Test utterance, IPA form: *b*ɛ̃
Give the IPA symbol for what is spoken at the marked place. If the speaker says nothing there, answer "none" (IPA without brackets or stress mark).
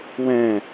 w